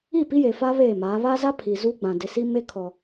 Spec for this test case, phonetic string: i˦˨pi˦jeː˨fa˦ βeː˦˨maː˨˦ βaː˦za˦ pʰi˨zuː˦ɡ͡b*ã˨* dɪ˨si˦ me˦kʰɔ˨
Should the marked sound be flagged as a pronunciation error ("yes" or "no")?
no